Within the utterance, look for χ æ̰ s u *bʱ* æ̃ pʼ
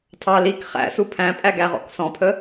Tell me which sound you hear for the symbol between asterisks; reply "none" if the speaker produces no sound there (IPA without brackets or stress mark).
pʰ